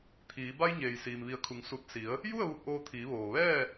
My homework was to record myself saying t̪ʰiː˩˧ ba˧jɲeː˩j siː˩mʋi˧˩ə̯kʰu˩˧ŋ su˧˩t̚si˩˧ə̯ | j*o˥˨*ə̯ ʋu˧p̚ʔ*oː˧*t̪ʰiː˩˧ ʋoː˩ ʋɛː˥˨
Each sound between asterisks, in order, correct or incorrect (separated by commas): incorrect, correct